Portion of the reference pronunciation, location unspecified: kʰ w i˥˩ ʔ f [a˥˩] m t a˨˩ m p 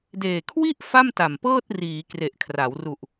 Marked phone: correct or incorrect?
correct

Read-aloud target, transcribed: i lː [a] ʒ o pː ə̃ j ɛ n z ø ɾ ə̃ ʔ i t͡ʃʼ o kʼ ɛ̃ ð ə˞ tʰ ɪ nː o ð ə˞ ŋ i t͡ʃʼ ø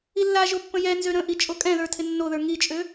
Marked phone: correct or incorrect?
correct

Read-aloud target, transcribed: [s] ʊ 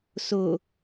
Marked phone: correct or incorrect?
correct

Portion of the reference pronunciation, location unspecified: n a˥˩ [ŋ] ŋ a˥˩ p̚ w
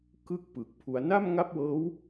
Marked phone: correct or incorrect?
incorrect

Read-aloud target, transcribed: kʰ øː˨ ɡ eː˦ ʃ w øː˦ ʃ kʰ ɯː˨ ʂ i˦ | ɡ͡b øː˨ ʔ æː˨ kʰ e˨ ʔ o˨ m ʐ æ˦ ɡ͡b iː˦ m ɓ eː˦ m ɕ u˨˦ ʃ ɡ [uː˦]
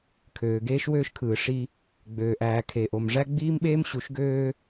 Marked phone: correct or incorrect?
incorrect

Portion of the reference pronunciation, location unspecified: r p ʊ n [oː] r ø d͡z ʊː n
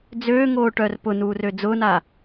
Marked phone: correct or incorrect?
incorrect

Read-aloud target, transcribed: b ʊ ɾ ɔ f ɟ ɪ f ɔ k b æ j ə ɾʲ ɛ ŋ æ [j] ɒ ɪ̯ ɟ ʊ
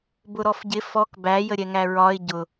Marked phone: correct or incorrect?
incorrect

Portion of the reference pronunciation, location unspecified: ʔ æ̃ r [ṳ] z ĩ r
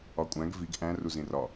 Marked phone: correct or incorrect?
incorrect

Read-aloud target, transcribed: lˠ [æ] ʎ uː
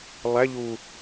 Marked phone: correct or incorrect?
correct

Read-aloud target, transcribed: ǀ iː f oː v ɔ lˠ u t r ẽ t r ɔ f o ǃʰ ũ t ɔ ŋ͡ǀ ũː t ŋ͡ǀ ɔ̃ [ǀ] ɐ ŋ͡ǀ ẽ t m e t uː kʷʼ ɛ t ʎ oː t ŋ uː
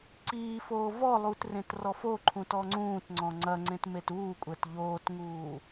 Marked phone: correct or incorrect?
incorrect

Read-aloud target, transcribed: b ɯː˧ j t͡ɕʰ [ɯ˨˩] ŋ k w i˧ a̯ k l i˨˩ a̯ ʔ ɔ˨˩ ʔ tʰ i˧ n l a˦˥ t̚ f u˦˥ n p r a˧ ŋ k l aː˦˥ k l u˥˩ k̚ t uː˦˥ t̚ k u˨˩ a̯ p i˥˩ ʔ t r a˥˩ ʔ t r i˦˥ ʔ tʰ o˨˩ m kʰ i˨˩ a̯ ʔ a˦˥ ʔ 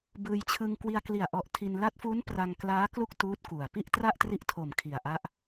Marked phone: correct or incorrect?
incorrect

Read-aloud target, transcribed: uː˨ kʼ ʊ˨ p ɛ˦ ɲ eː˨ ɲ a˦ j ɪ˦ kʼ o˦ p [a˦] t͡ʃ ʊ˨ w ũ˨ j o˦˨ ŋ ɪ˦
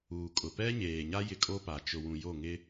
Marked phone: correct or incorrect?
incorrect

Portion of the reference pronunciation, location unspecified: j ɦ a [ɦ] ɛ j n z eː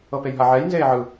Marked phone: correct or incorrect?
incorrect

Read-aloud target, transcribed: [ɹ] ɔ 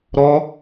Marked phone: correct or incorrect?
incorrect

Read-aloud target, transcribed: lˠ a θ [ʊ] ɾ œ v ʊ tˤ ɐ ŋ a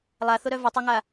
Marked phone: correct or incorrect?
correct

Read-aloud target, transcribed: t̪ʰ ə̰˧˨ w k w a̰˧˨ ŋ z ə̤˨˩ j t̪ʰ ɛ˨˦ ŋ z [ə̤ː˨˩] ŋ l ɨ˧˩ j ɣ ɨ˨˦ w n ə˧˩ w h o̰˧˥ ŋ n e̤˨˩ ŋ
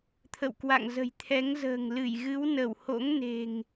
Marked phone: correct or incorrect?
correct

